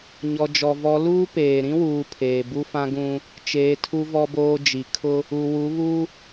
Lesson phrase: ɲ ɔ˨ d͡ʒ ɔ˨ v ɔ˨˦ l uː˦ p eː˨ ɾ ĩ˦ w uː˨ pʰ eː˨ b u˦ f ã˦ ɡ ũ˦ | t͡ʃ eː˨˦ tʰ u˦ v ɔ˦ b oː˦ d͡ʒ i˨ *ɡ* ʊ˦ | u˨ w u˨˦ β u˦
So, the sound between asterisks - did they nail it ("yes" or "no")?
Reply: no